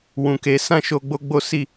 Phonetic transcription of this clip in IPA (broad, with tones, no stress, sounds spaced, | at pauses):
w ũ˨ k e˨˦ s ã˦ ʃ o˧ ɡ͡b o˦ ɡ͡b o˦ s i˦˨